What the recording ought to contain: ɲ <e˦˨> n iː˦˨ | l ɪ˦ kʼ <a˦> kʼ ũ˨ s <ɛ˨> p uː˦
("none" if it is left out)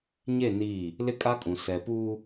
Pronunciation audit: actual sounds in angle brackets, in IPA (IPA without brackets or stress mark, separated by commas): e˦˨, a˦, ɛ˨